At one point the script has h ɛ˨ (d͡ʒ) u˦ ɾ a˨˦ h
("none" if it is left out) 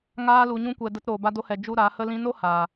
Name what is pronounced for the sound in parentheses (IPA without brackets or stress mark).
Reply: d͡ʒ